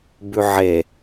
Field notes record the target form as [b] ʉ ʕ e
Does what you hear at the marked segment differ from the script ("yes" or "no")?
no